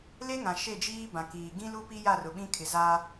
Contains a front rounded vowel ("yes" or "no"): no